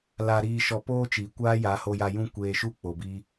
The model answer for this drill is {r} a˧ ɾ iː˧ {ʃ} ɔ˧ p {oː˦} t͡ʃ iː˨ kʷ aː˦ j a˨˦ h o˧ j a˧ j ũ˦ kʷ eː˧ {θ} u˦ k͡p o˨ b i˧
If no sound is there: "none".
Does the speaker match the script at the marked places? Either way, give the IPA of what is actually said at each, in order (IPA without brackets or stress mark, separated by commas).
l, ʃ, oː˦, ʃ